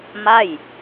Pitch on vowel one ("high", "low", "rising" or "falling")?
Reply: falling